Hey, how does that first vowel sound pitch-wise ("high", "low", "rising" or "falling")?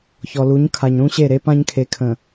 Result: low